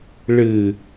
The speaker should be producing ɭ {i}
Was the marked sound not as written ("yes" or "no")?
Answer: yes